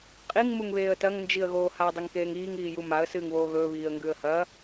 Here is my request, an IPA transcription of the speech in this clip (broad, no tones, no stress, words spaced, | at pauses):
qʼiŋ muŋβeːə̯tɐŋ nd͡ʒiə̯ɣoːha dˤɵŋkeːŋiːŋ iːjumaə̯ sɨːŋβoːɣɵː βiːə̯ŋɡʉə̯hɐ